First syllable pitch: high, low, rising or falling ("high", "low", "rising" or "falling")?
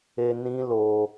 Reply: high